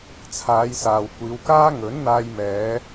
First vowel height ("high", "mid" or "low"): low